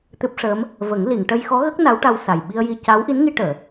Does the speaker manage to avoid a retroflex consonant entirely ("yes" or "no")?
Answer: no